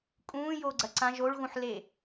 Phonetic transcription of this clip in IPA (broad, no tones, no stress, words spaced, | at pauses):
kʼũːjoɡ͡ǀɐ ǀã ʒoɭɣũħle